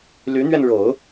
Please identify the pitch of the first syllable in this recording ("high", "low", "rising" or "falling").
rising